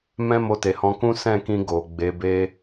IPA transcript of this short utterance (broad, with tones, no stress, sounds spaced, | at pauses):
m ɛ̃˦ m o˧ t e˨ h ɔ̃˧ k ũ˦ s ɛ̃˦˨ k ĩ˧ ɡ o˨ ɡ͡b e˨˦ b e˦